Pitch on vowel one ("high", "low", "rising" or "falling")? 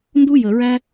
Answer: high